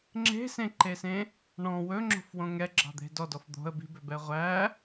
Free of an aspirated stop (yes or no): yes